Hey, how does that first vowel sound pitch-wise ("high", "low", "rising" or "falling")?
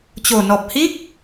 low